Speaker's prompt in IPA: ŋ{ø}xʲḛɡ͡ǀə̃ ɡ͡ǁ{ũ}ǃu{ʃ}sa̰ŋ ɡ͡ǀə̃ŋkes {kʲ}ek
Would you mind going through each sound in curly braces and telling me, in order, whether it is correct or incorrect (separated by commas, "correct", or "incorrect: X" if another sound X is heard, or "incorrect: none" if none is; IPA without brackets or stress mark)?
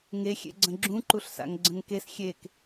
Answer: incorrect: e, correct, incorrect: ɬ, incorrect: xʲ